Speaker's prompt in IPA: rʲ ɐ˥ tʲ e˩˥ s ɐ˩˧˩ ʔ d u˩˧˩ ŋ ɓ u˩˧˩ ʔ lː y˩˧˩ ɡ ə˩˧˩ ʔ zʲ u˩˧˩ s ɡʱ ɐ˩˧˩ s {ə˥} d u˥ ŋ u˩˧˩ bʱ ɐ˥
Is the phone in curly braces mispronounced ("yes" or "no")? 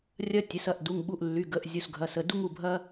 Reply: yes